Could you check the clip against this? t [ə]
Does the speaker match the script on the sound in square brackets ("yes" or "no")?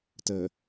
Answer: yes